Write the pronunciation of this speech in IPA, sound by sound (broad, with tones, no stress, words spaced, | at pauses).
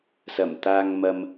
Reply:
sɐ˨˩mt̪aː˨ŋmɐ˨m